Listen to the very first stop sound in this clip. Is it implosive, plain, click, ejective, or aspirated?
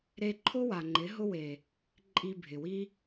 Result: click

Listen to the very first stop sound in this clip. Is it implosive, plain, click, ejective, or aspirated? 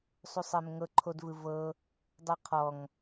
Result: click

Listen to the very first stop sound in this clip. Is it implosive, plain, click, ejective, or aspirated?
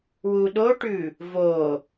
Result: implosive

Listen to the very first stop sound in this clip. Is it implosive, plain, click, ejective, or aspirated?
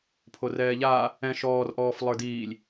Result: aspirated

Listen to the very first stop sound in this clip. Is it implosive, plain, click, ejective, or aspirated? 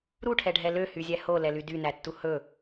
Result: aspirated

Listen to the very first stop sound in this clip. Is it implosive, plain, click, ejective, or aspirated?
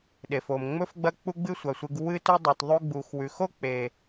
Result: implosive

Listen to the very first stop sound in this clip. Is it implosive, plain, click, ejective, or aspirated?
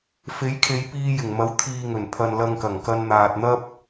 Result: aspirated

